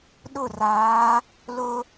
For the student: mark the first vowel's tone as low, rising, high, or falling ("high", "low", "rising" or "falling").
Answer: falling